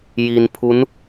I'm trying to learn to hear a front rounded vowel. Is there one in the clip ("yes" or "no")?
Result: no